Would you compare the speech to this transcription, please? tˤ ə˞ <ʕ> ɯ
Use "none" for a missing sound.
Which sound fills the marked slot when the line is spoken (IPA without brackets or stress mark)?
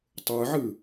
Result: ʕ